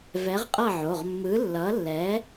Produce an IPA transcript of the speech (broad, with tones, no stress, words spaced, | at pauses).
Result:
vɛ˨˥ʁqʼʌ˥˨ʕo˩˧˩ʁ mːɯ˨˥ lːʌ˨˥lːɛ˨˥